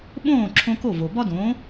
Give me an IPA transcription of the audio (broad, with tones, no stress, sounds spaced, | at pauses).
ɓ õː˥˩ ǁʰ õ˧ k o˥˩ v o˩ b ɒ˥ d õː˩˥